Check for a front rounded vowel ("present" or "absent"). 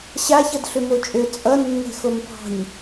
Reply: present